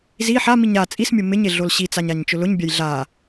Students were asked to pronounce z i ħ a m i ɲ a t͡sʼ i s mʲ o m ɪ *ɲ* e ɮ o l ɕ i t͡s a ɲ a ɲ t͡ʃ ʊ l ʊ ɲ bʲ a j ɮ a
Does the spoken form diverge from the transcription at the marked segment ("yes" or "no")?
no